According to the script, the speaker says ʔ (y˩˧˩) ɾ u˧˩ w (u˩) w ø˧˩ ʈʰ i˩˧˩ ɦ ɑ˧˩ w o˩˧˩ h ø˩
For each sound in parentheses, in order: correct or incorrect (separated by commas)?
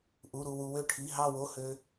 incorrect, correct